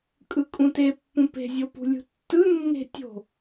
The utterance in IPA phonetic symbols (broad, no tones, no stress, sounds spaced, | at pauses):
kʼ ɯ kʼ ũ t e pː ũ p e̤ zʲ o p ṳ lʲ ṳ tː ɯ nː e̤ tʲ o̤